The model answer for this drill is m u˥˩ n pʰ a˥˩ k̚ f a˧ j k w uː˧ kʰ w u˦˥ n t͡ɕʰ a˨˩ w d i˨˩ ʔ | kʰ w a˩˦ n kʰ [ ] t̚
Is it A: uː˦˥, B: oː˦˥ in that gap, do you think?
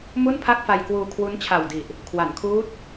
A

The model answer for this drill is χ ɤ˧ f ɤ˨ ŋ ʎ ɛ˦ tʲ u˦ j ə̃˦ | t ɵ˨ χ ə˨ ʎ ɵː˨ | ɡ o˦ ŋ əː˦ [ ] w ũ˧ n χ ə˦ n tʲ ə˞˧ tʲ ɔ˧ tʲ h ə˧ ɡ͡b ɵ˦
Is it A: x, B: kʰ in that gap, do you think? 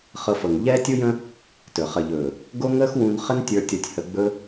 A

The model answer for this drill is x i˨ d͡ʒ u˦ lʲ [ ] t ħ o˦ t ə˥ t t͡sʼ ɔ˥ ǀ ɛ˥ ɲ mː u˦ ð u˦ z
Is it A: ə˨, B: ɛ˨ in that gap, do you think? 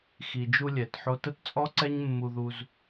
B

